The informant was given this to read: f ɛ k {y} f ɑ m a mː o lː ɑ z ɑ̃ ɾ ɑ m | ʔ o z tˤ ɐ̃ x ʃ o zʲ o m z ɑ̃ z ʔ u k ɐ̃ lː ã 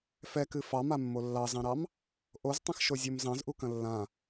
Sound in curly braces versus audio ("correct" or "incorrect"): incorrect